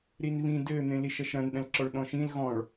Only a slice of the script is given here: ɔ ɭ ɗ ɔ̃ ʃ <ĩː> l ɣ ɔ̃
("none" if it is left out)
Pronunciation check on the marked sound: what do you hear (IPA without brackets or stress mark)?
ĩ